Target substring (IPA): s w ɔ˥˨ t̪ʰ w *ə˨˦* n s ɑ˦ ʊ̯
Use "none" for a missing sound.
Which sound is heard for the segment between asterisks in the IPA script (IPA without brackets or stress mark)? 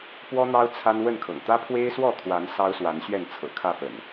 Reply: a˨˦